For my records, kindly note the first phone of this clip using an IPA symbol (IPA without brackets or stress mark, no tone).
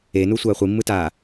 e